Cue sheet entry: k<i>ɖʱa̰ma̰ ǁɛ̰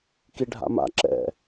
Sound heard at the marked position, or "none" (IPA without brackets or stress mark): i